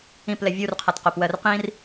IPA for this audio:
ĩ p l ɛ vʲ u r qʰ a t q o p w ɜ r q ĩ r

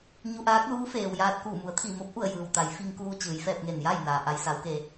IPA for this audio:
ɲ u˧ ʔ aː˧˥ k̚ l uː˧˥ f eː˩ w j aː˧ t̚ k uː˧˩ m u˩˧ ə̯ t̪ʰ i˧˩ m o˧˥ p̚ ʔ u˧˩ ə̯ j ɯː˩ w t̪ a˩˧ j f i˧ ŋ k uː˧ t͡ɕ ɯː˩˧ j f ɛː˧ p̚ ŋ e˧˩ n j a˥˨ j n aː˩ ʔ a˧ j s a˧˥ w k e˧

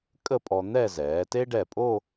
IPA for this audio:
kʼ ə˥˧ pʼ ɔ˧ n̪ ɛ˥˧ z ɛː˩˧ t e˥ ɖ ɛ˧˩ pʼ o˥˧

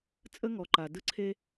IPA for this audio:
t͡sʼ ə˥ ŋ ɔ˨ ǃ a˨ d ɯ˦ ǀʰ e˦

